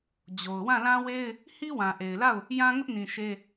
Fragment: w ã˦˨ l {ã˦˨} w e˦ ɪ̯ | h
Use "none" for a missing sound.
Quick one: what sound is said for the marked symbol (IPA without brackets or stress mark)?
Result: ã˦